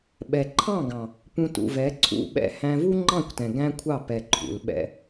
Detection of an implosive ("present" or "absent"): present